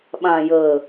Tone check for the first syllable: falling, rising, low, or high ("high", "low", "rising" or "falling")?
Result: low